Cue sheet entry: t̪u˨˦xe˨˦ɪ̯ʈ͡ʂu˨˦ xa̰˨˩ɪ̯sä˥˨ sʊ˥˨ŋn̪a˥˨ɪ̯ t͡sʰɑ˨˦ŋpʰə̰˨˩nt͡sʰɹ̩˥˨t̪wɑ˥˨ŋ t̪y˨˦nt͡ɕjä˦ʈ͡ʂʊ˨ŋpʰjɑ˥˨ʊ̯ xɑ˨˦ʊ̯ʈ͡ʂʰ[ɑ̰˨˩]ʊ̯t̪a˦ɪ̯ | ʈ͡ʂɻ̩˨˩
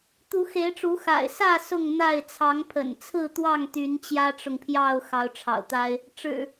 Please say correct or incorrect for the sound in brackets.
correct